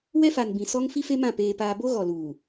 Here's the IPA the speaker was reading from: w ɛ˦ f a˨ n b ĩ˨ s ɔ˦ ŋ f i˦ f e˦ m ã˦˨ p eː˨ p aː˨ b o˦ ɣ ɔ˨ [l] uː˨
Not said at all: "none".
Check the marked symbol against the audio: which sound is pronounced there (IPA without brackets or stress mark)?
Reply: l